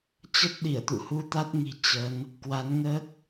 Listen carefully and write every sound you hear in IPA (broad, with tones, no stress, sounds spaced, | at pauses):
t͡ɕ ə˦˥ t̚ ɗ i˧˩ ə̯ t̪ ṵ˧˨ h u˧ t̪ a˦˥ t̚ ŋ i̤˨˩ t͡ɕ ə˨˦ n | k w a˨˦ n ŋ əː˦˥ k̚